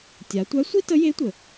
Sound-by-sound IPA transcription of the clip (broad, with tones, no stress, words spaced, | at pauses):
tʲa˩˧tʷæ˧˥ sʷi˥tə˧˥je˧˥tʷə˩